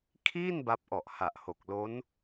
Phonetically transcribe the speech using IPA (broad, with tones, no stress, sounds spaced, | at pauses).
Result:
kʰ iː˥˩ n b a˦˥ p̚ ʔ ɔ˨˩ ʔ h a˨˩ ʔ h o˨˩ k̚ l o˦˥ n